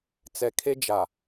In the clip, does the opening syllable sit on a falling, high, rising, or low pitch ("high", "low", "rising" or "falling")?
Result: low